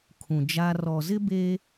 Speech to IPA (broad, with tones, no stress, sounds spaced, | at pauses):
kʰ ũ˨ d͡ʒ a˦ r ɔ˨ z ɪ˦ b eː˦